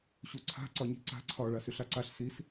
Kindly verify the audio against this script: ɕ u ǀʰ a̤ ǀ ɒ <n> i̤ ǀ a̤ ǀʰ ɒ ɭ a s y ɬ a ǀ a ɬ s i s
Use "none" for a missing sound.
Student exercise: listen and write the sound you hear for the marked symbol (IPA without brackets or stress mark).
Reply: ɲ